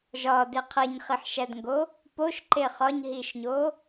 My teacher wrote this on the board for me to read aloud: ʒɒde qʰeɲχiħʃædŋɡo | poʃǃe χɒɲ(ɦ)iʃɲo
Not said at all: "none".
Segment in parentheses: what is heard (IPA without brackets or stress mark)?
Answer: ɦ